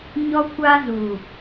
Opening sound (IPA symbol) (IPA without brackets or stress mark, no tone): ɲ